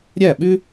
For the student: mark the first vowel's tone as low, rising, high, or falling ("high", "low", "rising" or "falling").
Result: falling